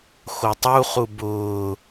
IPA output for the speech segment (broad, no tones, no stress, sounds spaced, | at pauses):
x o tˤ u χ u b ʊː